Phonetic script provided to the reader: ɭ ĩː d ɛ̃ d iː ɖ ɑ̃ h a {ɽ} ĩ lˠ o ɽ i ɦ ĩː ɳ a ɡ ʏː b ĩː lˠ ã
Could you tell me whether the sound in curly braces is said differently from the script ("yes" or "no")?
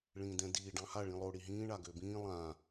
yes